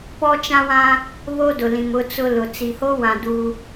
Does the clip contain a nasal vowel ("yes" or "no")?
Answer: yes